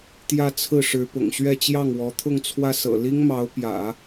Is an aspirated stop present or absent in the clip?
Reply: present